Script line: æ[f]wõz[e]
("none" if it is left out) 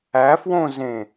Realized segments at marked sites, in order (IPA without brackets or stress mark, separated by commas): f, ẽ